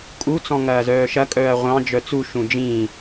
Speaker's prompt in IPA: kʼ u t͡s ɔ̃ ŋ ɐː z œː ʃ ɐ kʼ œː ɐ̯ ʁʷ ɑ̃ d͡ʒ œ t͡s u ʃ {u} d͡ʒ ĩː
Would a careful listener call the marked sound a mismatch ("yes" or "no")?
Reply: yes